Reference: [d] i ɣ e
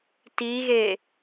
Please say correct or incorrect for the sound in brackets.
incorrect